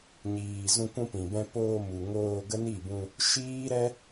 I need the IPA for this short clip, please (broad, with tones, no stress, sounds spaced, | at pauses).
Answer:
ɲ iː˨ z ũ˧ kʷ ũ˧ p ĩ˨ b ɛ̃˧ p oː˧ m u˨ ŋ oː˧ ɡ ə˦ n i˦˨ b ũ˧ | ʃ iː˦ ɾ ɛ˦